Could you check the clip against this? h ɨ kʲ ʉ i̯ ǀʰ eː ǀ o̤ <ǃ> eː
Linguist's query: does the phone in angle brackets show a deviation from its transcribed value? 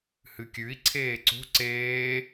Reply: yes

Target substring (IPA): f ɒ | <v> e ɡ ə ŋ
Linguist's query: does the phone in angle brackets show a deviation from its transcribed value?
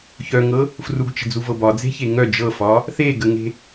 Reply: yes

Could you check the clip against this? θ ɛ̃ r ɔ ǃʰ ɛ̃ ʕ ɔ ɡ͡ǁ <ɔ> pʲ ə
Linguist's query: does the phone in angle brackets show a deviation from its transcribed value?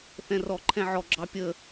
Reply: yes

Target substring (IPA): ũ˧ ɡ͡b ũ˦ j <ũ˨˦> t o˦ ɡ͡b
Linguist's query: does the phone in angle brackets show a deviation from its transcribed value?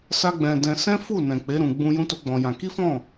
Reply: yes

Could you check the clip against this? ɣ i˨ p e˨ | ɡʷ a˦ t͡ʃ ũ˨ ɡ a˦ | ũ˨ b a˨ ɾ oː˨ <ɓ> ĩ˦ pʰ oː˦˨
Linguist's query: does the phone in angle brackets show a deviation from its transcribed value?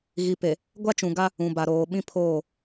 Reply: no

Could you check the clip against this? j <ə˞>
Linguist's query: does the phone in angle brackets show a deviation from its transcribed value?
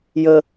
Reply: yes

